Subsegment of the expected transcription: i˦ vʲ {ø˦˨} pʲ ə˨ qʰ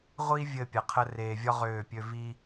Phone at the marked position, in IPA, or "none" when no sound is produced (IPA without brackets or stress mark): ɘ˦˨